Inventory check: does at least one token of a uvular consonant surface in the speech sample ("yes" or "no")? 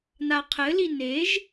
yes